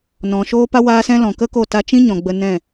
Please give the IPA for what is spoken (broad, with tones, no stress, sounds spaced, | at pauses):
n ɔ̃˨ ʃ oː˦ p a˦ w aː˦ s ɛ̃˦ l ɔ̃˨ k ə˦ k o˦˨ t a˧ t͡ʃ ĩ˦ ɲ ɔ̃˨ ɡ͡b ə˧ n ɛ̃˦˨